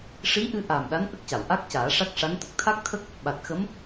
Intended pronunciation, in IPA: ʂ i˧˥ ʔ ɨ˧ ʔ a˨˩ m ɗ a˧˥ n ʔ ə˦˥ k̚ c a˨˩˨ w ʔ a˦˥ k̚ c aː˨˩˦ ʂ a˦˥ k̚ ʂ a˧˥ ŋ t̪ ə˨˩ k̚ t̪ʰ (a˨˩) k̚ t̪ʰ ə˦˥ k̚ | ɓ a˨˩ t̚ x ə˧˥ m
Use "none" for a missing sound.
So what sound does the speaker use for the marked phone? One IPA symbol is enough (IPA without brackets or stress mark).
a˦˥